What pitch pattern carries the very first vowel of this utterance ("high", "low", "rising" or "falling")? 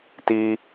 high